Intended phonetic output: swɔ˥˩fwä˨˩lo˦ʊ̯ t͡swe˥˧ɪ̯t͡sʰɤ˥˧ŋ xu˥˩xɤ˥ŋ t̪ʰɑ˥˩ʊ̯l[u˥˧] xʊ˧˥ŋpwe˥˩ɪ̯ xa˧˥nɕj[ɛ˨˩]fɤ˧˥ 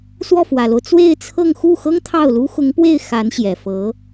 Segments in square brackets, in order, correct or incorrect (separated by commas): incorrect, correct